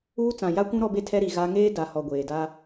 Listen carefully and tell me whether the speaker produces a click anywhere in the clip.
no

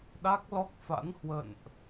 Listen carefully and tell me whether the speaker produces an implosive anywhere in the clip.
yes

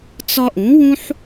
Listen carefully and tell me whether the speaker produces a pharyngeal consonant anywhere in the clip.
yes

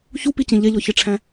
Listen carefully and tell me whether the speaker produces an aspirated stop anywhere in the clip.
yes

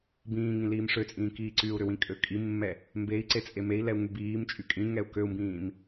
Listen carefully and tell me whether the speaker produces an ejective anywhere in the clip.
yes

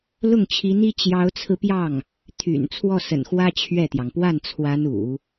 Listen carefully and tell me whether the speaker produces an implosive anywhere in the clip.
no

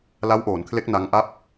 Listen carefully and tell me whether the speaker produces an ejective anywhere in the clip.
no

